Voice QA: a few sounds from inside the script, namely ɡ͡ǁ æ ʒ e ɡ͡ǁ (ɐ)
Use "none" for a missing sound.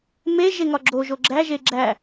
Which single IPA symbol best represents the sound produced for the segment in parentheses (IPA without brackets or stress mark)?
æ